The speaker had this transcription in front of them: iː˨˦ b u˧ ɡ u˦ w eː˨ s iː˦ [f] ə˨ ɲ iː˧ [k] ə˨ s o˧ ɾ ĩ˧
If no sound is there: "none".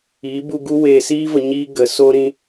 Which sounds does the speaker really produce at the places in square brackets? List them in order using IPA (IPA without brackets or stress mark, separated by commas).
v, ɡ